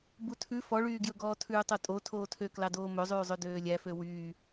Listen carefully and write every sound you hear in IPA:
butʰʉ fɔɭyːɡjɵɡɔː tʰʉːtˤotʼo tʰoːtʰøklɑdoː mɵzˤʉːzˤø døːlʲæfø wyː

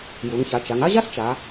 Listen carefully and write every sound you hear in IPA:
ju˩˧ŋça˩˧ t͡ʃa˩˧ŋa˥ʑa˥s t͡ʃa˩˧

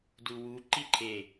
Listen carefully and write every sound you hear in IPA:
duwu ǃiǃʰe

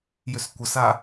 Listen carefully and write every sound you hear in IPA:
jʏskʷəsa

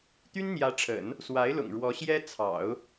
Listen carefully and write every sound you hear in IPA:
t̪y˥nn̪jä˧˥ʈ͡ʂʰə̰˨˩˦n | swa˧˥ɪ̯lʊ̰˨˩ŋ ɻwɔ˧˥ɕjɛ˥ t͡sʰɑ̰˨˩˦ʊ̯

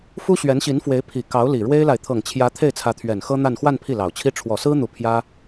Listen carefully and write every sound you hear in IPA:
fu˥ɕɥɛ˧˥nɕi˧˥nfwe˧˥ɪ̯ pʰi˨˩ kɑ˧˥ʊ̯li˨˩ɻwe˥ɪ̯la˨ɪ̯ t̪ʰɤ˨˩ŋt͡ɕʰjä˧˥ t̪ʰe˥˩ɪ̯t͡sʰä˧˥t̪ʰɥɛ˨˩n xɤ˥n̪a˥˧n xwa˥˧n pʰi˥˩lɑ˨˩ʊ̯t͡ɕʰi˥ ʈ͡ʂʰwɔ˨˩sɹ̩˥n̪u˨˩ pʰjä˥

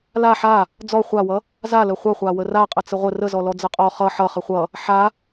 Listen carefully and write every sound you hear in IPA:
la ħa | d͡zɔ χʷawʌ | zalə χʷʌχʷa wəraqʼə t͡səʁʷə rəzɔlɔ d͡zəqʼɔ χʌ ħʌ χəχʷʌ | ħa

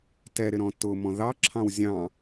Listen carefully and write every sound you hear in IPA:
tɛɾɪɾɔ̃ tʊmɔ̃ ðɑǁʰɑ̃w zʲɑ̃

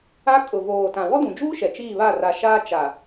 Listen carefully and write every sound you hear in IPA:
a˦ kʼʊ˨voː˨tã˨ wɔ˦dũ˨d͡ʒuː˦ ʃɛ˨t͡ʃiː˦˨βa˦˨ ra˨ʃaː˦ t͡ʃa˨

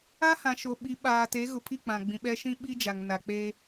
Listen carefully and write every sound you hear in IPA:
a˦ hã˨ʃo˨ɓi˨˦ ɓaː˨ te˨˦ɣʊ˨pʰi˦˨ k͡pã˨ɡ͡bĩ˨ɓɛ˦ ʃĩ˦ɓi˦ d͡ʒa˨ŋna˨k͡pe˦

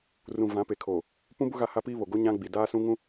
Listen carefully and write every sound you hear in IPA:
rũ˨ vã˨˦pe˨kʰoː˨ | pũ˦bʊ˦ ɣa˦ha˦piː˦βo˨ ɡo˦ɲã˦ ɡ͡bi˨ daː˦sũ˦ ŋũ˦

